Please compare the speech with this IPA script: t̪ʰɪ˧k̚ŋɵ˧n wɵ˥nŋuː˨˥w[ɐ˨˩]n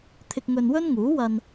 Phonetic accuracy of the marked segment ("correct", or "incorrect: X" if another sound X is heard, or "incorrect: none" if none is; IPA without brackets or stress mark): incorrect: ɐ˧